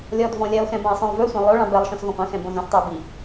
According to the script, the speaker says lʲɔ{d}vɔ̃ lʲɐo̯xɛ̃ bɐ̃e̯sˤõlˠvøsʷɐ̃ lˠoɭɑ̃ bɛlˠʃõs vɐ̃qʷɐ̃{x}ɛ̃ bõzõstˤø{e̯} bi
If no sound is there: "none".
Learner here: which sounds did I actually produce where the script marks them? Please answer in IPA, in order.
d, x, o̯

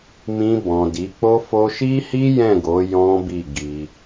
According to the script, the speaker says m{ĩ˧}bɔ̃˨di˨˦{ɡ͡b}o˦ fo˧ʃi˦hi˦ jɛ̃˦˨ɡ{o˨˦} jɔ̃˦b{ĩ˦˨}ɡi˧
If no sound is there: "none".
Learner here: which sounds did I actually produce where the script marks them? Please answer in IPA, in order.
ĩ˧, k͡p, o˨˦, i˦˨

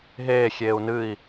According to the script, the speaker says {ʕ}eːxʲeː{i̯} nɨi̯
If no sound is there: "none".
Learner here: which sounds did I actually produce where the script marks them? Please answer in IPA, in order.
ɦ, u̯

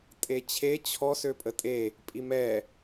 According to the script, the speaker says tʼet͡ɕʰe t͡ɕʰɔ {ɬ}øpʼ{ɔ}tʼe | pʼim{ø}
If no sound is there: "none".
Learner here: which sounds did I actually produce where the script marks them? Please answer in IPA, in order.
s, ə, ɛ

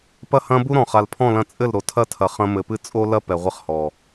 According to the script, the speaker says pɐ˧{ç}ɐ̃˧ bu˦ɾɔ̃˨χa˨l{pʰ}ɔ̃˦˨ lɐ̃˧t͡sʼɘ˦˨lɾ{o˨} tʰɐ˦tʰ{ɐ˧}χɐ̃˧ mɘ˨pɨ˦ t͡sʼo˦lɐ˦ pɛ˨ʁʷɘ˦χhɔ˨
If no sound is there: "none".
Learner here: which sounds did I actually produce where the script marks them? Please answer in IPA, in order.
h, pʰ, o˨, ɐ˨

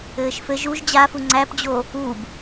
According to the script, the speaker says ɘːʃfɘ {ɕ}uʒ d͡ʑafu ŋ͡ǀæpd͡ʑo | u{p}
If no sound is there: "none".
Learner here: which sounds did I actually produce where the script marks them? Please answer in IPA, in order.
ʒ, b

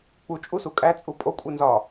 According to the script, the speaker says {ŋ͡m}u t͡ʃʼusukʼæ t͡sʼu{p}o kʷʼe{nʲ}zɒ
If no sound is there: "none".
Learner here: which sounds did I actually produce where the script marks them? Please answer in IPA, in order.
k͡p, pʼ, n

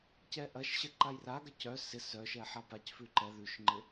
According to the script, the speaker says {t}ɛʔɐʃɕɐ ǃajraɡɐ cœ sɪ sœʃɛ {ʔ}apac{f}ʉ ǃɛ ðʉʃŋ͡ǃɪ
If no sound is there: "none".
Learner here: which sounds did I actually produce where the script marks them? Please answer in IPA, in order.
c, ħ, f

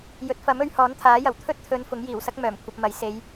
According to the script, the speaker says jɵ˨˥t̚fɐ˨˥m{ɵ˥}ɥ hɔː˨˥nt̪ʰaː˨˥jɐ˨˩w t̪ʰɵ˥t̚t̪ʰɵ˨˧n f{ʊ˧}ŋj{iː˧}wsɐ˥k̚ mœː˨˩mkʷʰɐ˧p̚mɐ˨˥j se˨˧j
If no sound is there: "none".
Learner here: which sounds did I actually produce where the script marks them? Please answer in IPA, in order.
ɵ˨˧, ʊ˨˥, iː˨˩

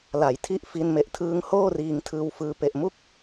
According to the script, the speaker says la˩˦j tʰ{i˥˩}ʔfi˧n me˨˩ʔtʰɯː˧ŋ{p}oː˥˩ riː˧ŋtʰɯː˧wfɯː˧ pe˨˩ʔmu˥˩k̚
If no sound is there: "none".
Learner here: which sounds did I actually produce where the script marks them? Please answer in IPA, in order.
i˥˩, h

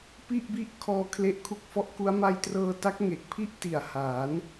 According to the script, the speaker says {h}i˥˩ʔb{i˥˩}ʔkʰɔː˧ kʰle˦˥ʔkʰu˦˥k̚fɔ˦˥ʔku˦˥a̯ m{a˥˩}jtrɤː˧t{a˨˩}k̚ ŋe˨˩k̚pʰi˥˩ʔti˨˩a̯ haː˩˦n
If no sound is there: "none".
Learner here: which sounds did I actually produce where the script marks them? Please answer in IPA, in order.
p, i˥˩, a˧, a˦˥

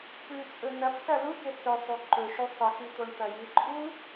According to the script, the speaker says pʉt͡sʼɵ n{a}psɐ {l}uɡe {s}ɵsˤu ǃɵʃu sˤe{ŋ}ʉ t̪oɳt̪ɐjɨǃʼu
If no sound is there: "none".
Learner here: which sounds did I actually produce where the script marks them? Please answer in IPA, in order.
ɐ, l, s, x

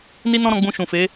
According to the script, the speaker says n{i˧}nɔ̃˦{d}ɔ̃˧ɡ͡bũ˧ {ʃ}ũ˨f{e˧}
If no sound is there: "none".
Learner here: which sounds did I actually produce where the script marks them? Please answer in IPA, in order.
i˦, ɾ, ʃ, e˨˦

